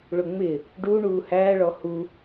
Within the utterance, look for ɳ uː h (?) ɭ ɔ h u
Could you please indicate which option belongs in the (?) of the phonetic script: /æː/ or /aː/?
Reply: æː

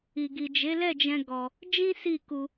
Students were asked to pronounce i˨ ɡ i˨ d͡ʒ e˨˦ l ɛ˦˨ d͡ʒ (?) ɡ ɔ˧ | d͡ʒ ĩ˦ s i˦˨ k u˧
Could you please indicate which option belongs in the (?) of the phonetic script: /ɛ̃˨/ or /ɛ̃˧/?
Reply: ɛ̃˧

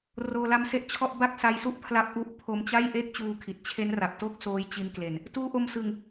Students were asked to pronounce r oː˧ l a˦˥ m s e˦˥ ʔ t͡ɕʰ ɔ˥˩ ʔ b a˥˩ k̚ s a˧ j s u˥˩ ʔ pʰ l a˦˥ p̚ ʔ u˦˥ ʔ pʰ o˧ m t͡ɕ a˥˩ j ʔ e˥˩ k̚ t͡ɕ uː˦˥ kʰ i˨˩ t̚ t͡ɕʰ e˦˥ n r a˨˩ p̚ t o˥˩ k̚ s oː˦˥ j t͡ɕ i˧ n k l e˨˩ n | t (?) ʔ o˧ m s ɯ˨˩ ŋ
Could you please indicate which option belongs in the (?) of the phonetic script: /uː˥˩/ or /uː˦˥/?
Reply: uː˦˥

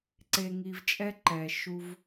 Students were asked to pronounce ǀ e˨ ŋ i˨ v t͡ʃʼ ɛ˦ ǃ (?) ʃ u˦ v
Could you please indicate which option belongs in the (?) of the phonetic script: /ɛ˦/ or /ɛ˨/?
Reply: ɛ˨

